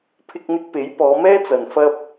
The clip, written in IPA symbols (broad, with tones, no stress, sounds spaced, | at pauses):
pʰ ɪ˧ k̚ n̪ ɪ˧ k̚ p e˨˥ j p ɔː˨˧ m ɛː˥ t͡s ɐ˨ n f ɐ˧ p̚